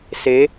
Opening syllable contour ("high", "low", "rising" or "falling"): rising